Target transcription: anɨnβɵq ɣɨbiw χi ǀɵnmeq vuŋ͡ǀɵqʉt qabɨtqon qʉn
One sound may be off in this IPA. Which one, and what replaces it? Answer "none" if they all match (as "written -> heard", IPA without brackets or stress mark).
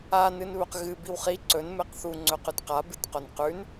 v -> θ